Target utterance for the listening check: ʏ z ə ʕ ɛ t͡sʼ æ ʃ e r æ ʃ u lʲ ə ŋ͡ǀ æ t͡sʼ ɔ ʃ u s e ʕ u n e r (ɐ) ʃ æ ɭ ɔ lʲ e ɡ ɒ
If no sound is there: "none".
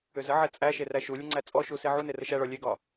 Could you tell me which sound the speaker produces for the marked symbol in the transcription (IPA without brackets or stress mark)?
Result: ə